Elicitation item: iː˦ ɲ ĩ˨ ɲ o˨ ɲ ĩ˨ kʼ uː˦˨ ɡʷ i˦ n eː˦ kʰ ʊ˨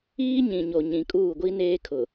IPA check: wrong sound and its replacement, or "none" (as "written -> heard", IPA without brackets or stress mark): none